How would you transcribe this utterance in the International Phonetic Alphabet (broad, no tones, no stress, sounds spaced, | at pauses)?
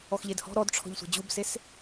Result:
ɔ x ʎ e d h ɔ̤ ɾ ɔ d ʈ͡ʂʰ ɔ̤ ʎ sʷ ɛ̤ d͡ʑ u b s e s